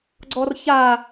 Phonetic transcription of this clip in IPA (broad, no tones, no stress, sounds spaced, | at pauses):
ɡ͡ǀ ɔ r ç a